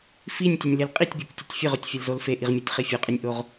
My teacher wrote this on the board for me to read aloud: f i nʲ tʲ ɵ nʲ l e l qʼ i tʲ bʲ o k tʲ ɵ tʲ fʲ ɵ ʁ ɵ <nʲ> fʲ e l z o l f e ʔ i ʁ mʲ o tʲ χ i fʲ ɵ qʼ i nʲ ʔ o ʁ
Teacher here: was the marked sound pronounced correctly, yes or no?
no